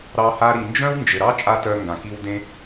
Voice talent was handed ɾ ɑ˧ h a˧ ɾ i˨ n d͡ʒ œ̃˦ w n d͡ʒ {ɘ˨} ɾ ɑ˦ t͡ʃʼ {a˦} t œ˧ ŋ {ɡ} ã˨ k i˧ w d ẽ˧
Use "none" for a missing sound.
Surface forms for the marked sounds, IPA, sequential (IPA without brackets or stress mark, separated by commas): ɘ˨, a˦, ɡ